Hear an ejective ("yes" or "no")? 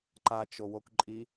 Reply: yes